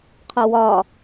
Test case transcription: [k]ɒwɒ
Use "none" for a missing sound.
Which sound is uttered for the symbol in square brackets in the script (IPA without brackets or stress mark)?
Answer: qʰ